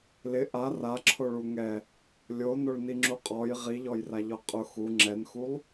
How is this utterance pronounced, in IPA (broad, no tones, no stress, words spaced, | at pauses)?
lɪ ʔa raǁʰoɭu ŋɛ | lʲonoɭniŋ͡ǁu qʼɔj ʁiʎɔjraʎɔ qʼʊ xu ŋ͡ǁɛnxulˠ